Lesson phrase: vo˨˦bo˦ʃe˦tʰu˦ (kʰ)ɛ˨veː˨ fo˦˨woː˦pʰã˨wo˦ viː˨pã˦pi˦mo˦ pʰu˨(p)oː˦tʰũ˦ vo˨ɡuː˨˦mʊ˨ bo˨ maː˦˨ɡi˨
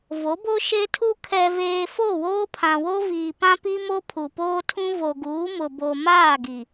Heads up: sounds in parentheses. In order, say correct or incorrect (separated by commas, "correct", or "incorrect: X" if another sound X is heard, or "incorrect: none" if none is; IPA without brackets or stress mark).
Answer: correct, correct